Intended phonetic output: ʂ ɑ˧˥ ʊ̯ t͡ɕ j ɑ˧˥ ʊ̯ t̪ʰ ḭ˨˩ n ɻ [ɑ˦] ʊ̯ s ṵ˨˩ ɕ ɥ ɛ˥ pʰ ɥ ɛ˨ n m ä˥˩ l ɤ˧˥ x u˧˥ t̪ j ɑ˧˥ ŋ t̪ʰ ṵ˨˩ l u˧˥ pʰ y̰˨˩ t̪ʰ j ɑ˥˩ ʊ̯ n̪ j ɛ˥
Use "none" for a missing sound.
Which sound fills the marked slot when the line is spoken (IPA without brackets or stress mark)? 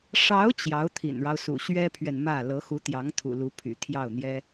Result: ɑ˦